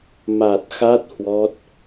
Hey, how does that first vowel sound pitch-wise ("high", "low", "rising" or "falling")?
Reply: low